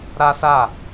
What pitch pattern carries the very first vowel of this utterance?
high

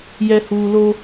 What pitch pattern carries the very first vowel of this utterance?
low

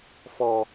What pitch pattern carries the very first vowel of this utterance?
low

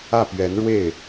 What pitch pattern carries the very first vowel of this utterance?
falling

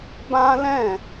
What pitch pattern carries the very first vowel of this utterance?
high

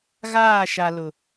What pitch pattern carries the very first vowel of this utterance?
falling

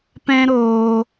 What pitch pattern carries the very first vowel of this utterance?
high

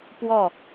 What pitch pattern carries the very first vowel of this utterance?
falling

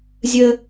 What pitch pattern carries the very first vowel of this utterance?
high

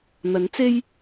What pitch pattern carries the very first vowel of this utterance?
rising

